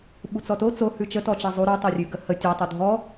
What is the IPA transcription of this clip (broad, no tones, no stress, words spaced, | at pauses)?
ɓut͡sɔto t͡so hʉt͡ʃə tɔt͡ʃɛzˤu ɾo tˤorʲʉɡəhə tʲɔ tˤudʱɔ